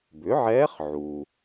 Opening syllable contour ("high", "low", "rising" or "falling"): rising